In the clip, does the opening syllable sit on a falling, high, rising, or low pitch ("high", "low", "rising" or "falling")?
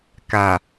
low